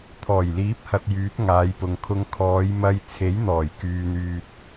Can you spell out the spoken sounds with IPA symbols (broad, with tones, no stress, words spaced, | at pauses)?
t̪ʰɔː˨˩jliː˨˥p̚hɐ˨t̚ jyː˨˥t̚ŋaː˨˧jpʊ˨ŋkʰʊ˧ŋ kʰɔː˨˧jmɐ˧j t͡sʰe˨˥jn̪ɔː˨˩jkyː˨n̪yː˨t̚